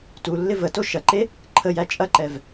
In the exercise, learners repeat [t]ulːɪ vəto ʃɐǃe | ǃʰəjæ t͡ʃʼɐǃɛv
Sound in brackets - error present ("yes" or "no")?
no